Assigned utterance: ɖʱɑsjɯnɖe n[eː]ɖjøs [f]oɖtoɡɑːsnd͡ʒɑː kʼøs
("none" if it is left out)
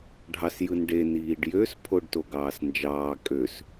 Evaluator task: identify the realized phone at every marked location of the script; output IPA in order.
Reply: iː, pʰ

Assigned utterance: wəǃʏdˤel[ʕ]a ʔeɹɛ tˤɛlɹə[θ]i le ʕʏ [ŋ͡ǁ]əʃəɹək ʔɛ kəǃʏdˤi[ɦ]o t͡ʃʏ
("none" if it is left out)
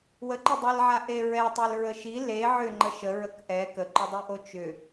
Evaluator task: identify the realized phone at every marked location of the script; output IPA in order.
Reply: ʕ, ʃ, ŋ͡ǃ, ʔ

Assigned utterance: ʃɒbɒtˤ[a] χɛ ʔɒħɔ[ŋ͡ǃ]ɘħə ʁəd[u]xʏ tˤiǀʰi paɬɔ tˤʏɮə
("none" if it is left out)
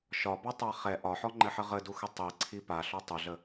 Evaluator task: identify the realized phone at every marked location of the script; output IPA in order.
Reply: a, ŋ͡ǃ, u

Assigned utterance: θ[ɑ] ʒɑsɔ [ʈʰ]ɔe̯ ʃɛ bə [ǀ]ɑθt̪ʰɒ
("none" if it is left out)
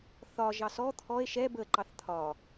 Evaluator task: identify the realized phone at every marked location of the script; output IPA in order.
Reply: ɒ, t̪ʰ, ǃ

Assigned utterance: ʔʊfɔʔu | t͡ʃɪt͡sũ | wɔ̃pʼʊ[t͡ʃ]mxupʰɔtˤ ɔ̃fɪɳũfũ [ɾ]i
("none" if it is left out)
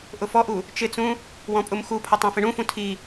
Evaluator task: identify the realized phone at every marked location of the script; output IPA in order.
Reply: none, tʰ

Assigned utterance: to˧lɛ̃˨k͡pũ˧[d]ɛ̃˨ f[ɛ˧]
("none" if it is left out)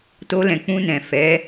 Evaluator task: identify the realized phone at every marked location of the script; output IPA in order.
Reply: n, ɛ˨˦

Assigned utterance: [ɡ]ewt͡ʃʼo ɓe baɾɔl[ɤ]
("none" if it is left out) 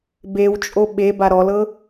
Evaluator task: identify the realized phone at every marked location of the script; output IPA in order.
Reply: b, ɤ

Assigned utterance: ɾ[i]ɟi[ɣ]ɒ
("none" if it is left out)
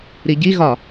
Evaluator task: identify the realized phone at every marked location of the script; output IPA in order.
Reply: i, ɣ

